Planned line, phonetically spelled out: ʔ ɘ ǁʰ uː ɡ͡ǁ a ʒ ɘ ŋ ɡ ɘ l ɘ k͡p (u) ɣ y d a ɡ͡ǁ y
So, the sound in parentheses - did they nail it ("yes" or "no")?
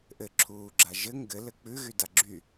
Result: no